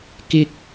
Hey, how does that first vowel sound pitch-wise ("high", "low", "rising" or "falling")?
high